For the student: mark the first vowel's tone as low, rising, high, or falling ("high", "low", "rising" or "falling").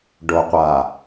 low